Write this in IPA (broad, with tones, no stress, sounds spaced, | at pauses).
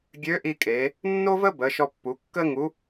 ɡʲ ø˧˥ ʔ i˧ kʼ e˩˧ | nː o˥ v ə˥ b ə˩˧ ʃ ɔ˧ pː u˩˧ kː ə˥ ŋ u˧˥